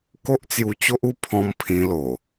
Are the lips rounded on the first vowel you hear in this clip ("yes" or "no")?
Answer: yes